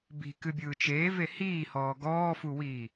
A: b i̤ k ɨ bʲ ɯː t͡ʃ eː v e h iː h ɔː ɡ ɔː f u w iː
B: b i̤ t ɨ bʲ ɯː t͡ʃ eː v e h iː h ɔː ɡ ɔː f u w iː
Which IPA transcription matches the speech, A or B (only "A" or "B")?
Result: A